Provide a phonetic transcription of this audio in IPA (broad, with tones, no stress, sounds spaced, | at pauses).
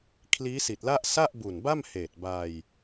kʰ l iː˦˥ s i˨˩ t̚ l a˥˩ ʔ s a˥˩ ʔ b u˨˩ n b a˥˩ m h eː˨˩ t̚ b a˧ j